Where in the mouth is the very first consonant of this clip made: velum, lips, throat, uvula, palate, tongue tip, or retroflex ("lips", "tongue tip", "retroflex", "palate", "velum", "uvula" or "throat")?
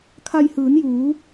velum